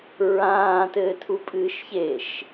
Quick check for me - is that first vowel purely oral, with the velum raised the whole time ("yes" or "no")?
no